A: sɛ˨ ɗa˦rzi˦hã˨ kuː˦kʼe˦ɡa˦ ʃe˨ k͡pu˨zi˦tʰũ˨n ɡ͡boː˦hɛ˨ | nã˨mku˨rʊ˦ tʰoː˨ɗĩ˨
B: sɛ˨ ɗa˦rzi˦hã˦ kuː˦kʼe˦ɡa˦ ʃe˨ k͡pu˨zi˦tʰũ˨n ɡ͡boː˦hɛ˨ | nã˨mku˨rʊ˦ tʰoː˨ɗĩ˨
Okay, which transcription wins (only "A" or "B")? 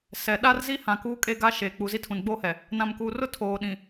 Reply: A